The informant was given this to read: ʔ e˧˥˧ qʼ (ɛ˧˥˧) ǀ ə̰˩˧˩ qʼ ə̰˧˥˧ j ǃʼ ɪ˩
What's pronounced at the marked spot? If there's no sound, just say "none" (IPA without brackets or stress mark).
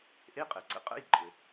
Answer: ɛ˩